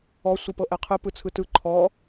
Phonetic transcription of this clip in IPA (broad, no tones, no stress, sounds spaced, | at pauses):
ɔ sʷ ɯ p ɤ ʔ ɛ qʰ ɯ p ɯ t͡sʰ ɯ t ɯ ǃʰ ɔ